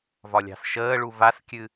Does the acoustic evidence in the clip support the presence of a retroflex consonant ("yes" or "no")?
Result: yes